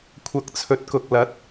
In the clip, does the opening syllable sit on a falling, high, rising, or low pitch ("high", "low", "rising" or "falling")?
rising